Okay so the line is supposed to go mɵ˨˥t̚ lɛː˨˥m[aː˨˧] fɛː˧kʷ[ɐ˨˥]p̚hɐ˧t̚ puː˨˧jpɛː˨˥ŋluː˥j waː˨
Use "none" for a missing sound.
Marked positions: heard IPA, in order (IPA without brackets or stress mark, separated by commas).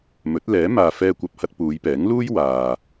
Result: aː˨, ɐ˨